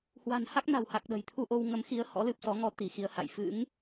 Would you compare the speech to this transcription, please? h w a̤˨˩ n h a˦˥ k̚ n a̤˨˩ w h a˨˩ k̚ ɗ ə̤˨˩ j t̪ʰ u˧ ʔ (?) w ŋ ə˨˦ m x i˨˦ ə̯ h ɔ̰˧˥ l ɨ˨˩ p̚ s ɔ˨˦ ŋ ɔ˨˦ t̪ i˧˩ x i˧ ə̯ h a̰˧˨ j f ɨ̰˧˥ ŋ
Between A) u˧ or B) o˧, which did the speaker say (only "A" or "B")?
B